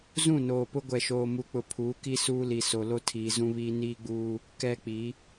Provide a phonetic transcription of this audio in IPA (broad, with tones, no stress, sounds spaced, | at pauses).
z ũ˦˨ n oː˨ p ʊ˦ ɡʷ ɛ˨ ʃ oː˨ m u˨ k͡p ʊ˨ pʰ uː˨˦ k i˦ s uː˦ l i˨ s o˨ l o˦ tʰ iː˨ z ũ˦ β iː˦ n iː˦ ɡ͡b uː˦ | k ɛ˦ k͡p i˨˦